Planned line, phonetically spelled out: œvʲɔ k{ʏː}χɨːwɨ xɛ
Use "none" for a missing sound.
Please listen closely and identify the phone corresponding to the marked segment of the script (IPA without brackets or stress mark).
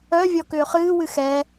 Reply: ʏː